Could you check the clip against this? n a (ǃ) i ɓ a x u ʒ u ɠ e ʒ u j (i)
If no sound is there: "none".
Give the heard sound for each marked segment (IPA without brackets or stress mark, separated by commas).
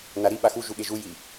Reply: ɾ, i